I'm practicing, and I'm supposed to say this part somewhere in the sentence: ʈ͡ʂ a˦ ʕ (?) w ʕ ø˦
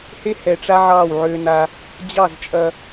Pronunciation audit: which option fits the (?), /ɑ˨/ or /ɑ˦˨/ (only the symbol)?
ɑ˦˨